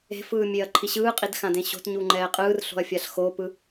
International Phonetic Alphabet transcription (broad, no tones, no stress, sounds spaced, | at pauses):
e̤ f ɯː mʲ e ɐ̯ ǃʰ i ɕ ɯː qʼ i d x ã d ẽ ɕ o̤ t ɲ u ŋ͡ǃ ɛː qʼ ɯː r ɬ o̤ ɐ̯ fʲ a ɬ x o p ɯ